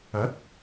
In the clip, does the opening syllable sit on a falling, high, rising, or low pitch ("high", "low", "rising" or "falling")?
rising